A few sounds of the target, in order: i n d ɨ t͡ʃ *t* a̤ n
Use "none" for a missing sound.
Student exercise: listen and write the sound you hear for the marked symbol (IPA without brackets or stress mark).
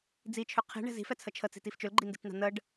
n̪